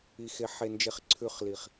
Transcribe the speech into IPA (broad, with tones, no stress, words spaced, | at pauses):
i˨xe˨ ħe˨nd͡ʒe˨χ ǀʰʉ˨χli˨χ